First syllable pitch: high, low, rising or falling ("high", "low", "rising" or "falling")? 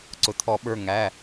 low